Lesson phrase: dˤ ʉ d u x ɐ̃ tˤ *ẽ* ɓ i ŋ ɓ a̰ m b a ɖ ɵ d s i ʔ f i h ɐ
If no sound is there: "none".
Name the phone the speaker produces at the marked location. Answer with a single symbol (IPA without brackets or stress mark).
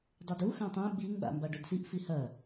ẽ